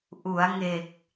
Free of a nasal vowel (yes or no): yes